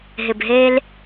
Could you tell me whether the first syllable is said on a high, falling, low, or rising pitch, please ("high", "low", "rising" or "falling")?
low